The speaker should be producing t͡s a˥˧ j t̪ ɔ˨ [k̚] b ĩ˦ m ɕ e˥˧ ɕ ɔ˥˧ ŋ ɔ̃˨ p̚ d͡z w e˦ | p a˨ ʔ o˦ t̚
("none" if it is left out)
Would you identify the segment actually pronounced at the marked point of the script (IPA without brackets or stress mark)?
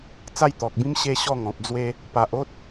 k̚